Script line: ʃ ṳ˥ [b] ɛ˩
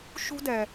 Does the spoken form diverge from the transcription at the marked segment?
yes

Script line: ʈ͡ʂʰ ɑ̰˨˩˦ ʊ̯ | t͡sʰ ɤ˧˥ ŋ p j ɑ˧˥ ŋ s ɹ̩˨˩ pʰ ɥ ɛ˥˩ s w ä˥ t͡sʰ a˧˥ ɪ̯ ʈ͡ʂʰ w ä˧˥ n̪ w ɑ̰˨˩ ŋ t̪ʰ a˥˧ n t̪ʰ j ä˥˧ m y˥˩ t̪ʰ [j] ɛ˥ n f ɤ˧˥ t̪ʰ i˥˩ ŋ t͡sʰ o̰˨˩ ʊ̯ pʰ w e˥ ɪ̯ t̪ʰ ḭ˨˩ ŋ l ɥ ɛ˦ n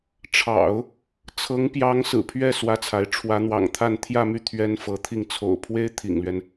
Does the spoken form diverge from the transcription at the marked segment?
yes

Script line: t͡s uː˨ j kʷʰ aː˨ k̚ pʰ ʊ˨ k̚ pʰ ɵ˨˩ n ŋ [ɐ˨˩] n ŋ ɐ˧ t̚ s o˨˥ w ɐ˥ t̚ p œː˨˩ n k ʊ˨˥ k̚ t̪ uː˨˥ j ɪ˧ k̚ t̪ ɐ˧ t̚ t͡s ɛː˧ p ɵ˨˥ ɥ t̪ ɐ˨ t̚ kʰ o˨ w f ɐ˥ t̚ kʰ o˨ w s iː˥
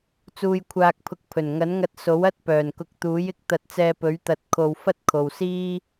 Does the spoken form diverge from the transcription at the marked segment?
yes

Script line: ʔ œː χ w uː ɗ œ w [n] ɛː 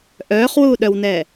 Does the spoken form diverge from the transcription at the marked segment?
no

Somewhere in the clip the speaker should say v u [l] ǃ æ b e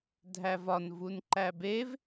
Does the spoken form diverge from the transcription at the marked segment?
yes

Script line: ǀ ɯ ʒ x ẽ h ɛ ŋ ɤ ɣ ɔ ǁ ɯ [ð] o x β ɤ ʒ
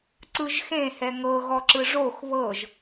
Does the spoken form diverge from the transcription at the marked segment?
yes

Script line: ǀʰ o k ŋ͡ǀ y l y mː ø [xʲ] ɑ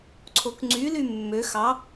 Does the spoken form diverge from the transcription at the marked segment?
yes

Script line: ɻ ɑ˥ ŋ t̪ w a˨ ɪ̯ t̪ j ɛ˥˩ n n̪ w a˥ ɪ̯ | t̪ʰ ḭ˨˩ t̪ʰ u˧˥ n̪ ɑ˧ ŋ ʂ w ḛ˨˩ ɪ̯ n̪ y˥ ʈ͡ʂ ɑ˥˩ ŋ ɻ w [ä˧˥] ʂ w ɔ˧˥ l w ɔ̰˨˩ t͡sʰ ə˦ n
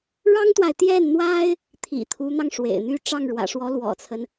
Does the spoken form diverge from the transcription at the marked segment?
yes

